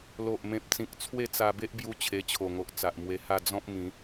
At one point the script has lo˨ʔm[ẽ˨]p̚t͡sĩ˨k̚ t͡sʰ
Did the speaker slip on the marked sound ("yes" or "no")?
no